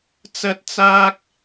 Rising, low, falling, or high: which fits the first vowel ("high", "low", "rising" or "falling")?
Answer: high